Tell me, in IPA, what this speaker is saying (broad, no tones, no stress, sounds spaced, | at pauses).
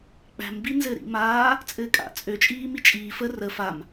k͡p æ̤ m b i n z ɘ ɾ ḭ m aː | t͡sʼ ɘː kʼ a̰ t͡sʼ ø t͡ʃʼ iː m i t͡ʃʼ iː f ə r ə f a m